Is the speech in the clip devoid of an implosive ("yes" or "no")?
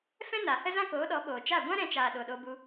no